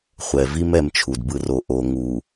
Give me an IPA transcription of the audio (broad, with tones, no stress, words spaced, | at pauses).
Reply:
χʷɛ˨ vi˦m ɛ˦mt͡ʃʰu˨dbɯ˦ ro˨ ʔo˨ ŋu˨